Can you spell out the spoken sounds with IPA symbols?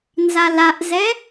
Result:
nzalaʔzɛ

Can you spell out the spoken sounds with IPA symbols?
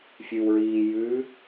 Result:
fʲʉwɹiː jʉ

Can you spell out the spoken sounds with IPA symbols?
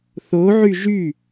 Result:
θoʕy ʒy

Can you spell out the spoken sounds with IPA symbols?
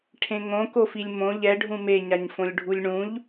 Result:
ʈʰẽŋõkofilʲ mõ ʎɛɖʱũ meɲaɲfõlʲɖʱulʲ ɳũʎ

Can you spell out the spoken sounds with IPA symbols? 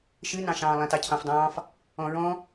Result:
ʃɨnɑ̃ʃɑ̃ː lˠɛ̃tɑcʰɑ̃fdˤɑ̃ːf | ɔ̃ɹɔ̃

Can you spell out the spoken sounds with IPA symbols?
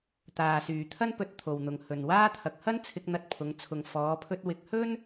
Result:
t̪aː˨syː˨t̪ʰɐ˥n pɵ˧t̚t̪ʰo˨wn̪ʊ˨ŋ hɵ˨nwaː˥ t̪ʰɐ˨˥k̚hɐ˥n t͡sʰɪ˧k̚ n̪ɐ˧t̚pʰʊ˨˧ŋt͡sʰʊ˨ŋ fɔː˨˧pʰɵ˧t̚ wɪ˨˥k̚hɵ˥n

